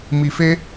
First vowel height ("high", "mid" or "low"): high